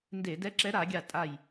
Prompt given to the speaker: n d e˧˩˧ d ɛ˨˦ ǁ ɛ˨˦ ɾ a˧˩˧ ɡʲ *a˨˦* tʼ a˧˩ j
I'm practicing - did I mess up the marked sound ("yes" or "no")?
yes